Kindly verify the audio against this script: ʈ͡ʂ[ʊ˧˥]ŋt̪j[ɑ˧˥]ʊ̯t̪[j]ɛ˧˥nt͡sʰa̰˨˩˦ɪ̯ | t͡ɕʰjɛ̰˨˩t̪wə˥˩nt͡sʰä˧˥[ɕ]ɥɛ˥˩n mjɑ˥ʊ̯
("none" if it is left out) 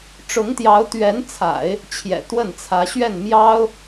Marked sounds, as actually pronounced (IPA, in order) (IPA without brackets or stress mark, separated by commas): ʊ˧˥, ɑ˧˥, ɥ, ɕ